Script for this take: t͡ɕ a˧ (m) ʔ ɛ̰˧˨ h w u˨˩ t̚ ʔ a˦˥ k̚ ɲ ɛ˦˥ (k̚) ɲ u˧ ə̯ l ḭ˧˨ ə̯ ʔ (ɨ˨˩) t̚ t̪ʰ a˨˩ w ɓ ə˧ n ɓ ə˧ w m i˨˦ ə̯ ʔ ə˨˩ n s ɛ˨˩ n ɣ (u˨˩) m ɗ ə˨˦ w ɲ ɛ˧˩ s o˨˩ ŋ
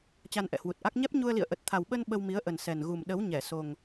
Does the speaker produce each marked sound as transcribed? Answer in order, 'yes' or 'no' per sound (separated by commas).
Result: no, no, no, yes